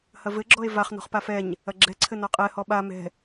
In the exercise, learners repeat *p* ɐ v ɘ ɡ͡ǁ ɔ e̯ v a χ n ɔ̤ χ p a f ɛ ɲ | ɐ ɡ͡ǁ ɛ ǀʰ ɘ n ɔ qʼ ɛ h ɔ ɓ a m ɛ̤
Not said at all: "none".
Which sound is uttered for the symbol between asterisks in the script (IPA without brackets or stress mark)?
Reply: h